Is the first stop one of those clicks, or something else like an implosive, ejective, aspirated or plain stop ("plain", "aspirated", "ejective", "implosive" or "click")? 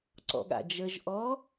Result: click